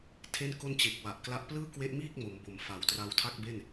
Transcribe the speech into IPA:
tʰ e˥˩ n k o˥˩ n t͡ɕ e˨˩ k̚ w a˨˩ ʔ k l a˦˥ ʔ p l ɯː˥˩ k w e˦˥ ʔ m iː˥˩ k̚ m o˩˦ m b o˨˩ m f a˩˦ w t r a˧ w tʰ a˥˩ k̚ b e˥˩ n

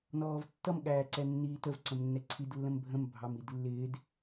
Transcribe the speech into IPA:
n ɔː v tː ʌ m ɠ æː ǀ ɛ nː iː t ə v ǀ ə̃ m nː ɛ ǀʰ i d lː ə̃ m bʱ ə̃ m bʱ ɑ m i d lː ɪː d

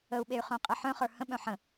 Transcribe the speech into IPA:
ə u̯ ɓ e y̯ χ œ̃ qʼ ɘ ħ œ̃ χ ə˞ h ə̃ ɓ œ̃ ħ ə̃

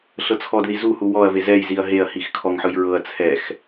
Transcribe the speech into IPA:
ɬ ɤ t͡sʰ ɔ d ð i z u h u w ɔ ɐ̯ v e z ɛ j z i ɐ̯ ɦ e ɐ̯ h i x kʰ ɔ ŋ ħ ɯ j ɹ ɤ ɐ̯ t͡sʰ ɛ x

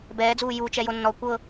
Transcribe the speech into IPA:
b ɛː d͡z uː j u t͡ʃ ɛ j o nː ɔ kʷ ɤ

